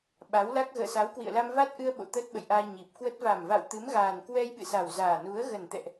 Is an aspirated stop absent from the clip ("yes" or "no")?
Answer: yes